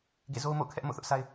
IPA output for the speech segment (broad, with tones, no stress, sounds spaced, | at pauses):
ɡ ḛ˦˨ z o˦ ʊ̯ m o̰˦˨ ʊ̯ kʰ ɛ˦ ʔ m o̰˦˨ θ ʊ˦ ʔ sʰ a˦ ɪ̯